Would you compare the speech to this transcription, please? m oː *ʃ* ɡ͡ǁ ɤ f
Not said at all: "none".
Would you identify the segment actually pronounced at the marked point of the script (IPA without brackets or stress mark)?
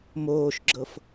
ʃ